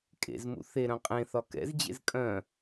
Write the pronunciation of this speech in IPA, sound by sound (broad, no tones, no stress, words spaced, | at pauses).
kʼḛzmṵ θeɾœ̃ qʼẽθɒ kɛ̰zd͡ʑḛz kʼœ̃